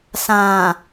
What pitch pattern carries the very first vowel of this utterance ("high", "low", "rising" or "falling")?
low